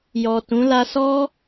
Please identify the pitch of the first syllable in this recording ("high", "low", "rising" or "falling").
low